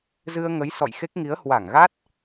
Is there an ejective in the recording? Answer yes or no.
no